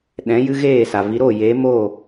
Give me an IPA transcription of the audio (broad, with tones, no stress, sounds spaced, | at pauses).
ɗ ɛ̃˨˦ j ɨ˦ ɣ eː˦˨ s a˨ v i˨˦ ɾ oː˦˨ j eː˨˦ m oː˦˨